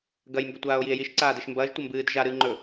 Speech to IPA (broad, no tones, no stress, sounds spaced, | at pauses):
ɡ ɐ j m b ɵ tʷ aː o̯ j i e̯ j i ʃ ǀ aː d e ʃ m b ɐː ʒ tʷ ɐ m b ɨː d ʒ a ɾ ɨː ŋ͡ǃ ɵ